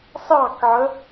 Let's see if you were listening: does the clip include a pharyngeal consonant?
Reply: yes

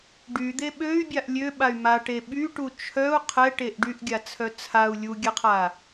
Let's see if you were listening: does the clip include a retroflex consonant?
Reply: yes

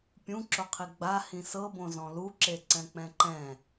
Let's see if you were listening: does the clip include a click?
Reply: yes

